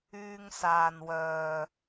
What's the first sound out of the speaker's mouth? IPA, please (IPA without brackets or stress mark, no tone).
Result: yː